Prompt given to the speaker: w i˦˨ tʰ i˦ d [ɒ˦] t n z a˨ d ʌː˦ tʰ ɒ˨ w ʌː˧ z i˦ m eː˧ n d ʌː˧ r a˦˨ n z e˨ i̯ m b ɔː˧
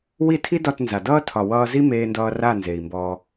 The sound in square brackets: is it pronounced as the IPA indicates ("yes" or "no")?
no